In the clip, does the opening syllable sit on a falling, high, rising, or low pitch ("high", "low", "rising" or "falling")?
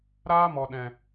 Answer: high